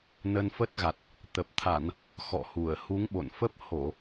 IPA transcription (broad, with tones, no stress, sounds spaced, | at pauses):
n ə˧ n f ə˦˥ t̚ ɣ a˨˩ t̚ | t̪ ə˨˩ p̚ t̪ʰ a˧˩˨ n | x ɔ̰˧˨ h u˧˩ ə̯ h u˨˦ ŋ ɓ o̰˧˨ n f ə˦˥ p̚ h o˧˩˨